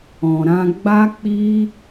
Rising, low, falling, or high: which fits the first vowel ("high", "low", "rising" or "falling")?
low